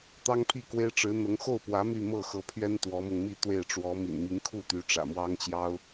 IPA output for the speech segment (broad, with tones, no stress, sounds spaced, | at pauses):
t̪ ɑ˥ ŋ pʰ i˥˩ k w e˥ ɪ̯ ʈ͡ʂ ɻ̩˧˥ n̪ ɤ˧˥ ŋ x o˥˩ ʊ̯ p w ä˧˥ m y˥˧ m ɤ˥˩ x ɤ˧˥ pʰ ɥ ɛ˥ n t̪ w ɔ˧˥ m ʊ˧ ŋ m i˥˧ t̪ w e˥˩ ɪ̯ ʈ͡ʂ w ɔ˧˥ m ḭ˨˩ n m i˧˥ ŋ kʰ u˥˩ t̪ y˧˥ ʈ͡ʂ ä̰˨˩ m w ɑ˥ ŋ t͡ɕ j ɑ˥ ʊ̯